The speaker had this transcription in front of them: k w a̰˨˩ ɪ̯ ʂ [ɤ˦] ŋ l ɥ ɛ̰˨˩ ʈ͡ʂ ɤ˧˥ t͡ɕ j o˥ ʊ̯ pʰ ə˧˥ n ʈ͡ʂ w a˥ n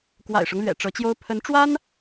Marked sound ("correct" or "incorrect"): correct